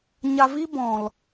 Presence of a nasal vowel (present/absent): present